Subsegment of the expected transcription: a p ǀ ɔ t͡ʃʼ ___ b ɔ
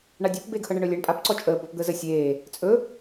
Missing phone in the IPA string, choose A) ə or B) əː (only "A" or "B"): B